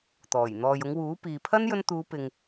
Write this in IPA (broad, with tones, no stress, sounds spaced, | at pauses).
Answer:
t̪ ɔː˨˩ j n̪ ɔː˨ j ʊ˨˧ ŋ w uː˨˥ p iː˨ pʰ ɐ˥ n j ɵ˧ n t̪ uː˨˧ p ɪ˨ ŋ